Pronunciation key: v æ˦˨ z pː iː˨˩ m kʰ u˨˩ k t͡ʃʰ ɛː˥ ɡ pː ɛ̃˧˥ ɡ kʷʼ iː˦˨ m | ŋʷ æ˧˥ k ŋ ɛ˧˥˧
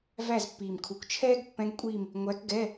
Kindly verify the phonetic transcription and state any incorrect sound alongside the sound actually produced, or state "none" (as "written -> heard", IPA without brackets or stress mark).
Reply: ŋ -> ɡ